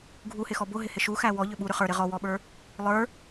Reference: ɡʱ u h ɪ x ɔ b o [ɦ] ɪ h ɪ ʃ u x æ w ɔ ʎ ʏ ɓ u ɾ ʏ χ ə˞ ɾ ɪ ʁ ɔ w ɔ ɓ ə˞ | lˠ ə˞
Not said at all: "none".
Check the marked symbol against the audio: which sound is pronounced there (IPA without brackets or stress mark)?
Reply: ɦ